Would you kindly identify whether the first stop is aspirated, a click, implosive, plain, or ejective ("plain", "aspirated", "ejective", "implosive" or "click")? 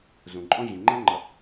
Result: click